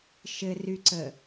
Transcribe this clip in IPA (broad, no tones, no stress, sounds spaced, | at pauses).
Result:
ʃ ɘ r y ǀ ə